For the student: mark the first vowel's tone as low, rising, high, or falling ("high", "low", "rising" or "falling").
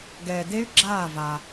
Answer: low